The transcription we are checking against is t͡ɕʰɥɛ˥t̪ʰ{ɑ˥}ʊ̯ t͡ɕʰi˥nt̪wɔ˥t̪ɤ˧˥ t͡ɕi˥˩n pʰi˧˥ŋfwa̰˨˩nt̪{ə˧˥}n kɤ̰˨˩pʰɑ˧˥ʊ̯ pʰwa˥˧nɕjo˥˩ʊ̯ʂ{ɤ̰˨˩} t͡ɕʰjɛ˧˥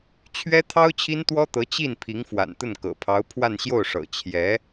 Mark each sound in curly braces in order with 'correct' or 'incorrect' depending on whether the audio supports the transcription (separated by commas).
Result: correct, incorrect, correct